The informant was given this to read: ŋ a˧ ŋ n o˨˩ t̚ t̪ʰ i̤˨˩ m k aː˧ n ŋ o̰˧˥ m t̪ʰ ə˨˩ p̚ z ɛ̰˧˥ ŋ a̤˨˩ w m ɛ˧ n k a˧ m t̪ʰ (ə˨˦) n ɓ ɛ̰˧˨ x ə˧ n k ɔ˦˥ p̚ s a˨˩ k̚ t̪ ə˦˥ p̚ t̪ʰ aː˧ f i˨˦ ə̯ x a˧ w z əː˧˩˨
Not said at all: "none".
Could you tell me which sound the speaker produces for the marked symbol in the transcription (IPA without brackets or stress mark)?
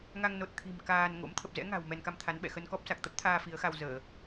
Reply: a˨˦